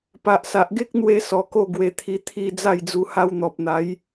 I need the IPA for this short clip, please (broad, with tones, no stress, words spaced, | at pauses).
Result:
pa˨ʔsa˨ʔɡe˦k̚n̪we˧ sɔ˨˩ko˥˧ ɡwe˧t̪ʰi˧ t̪ʰi˧ d͡za˥˧jd͡zu˧ ha˧wn̪ɔ˨p̚n̪a˨˦j